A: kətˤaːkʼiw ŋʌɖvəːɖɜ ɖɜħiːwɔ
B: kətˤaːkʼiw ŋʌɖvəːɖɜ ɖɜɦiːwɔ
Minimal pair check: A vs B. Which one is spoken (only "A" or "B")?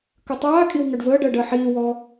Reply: A